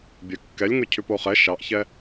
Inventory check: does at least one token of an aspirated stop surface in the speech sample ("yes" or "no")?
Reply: yes